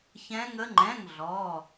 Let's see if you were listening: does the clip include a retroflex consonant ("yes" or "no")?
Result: no